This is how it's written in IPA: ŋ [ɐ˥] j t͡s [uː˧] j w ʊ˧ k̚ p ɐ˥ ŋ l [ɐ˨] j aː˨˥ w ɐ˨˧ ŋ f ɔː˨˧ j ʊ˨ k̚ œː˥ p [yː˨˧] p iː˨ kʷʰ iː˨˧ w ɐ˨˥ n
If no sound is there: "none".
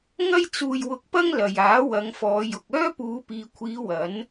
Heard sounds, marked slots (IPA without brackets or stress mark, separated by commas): ɐ˥, uː˧, ɐ˨, uː˨˧